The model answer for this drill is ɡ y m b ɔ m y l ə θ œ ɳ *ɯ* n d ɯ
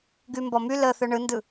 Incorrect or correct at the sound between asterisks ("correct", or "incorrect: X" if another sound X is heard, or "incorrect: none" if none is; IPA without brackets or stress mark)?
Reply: correct